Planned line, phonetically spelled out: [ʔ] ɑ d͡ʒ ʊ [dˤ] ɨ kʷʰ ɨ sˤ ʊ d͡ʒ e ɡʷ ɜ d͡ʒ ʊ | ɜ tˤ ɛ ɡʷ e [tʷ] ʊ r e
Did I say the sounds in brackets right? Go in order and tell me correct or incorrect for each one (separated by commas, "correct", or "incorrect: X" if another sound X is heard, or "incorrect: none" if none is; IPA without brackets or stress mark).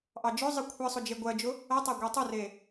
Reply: correct, incorrect: zˤ, incorrect: tˤ